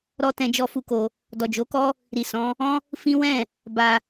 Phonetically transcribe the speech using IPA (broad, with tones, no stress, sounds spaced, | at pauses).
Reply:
ɾ ɔ˦ t ɛ̃˧ d͡ʒ ɔ˧ f u˦ k o˧ | d ɔ˨ d͡ʒ o˨˦ k ɔ˦ | ɾ i˨ s ɔ̃˨˦ | ɔ̃˦ | f ĩ˦ w ɛ̃˦˨ | b a˧